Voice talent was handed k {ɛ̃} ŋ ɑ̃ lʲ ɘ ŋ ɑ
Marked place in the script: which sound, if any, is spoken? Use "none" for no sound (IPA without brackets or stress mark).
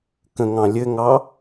ə̃